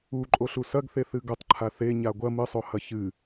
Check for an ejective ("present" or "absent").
present